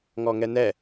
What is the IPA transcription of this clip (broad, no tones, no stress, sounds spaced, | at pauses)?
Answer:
ŋ ɔ ŋ ɛ n ɛ